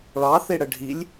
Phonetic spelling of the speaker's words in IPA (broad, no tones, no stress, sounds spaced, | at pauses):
ɭ ɑ θ e ɽ ə ɖʱ i lʲ